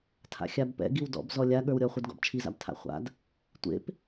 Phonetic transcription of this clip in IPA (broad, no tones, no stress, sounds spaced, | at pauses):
tʰ a̰ xʲ a b p ɛ̰ ɡ i w d ɔ̰ b z ɔ lʲ a ɠ ə˞ w ɾʲ ɔ χʷ e d ɡ ɔ̰ b t͡ʃʰ i z a̰ b tʰ a̰ χʷ a̰ d | tʷ ḛ p